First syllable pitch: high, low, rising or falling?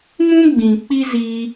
high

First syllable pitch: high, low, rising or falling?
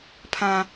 low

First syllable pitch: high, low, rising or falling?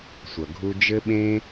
low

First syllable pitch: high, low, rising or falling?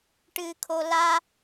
low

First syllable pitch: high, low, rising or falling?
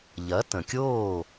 rising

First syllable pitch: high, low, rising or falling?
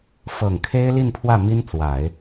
low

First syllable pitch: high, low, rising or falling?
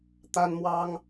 high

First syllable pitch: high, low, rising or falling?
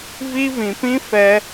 high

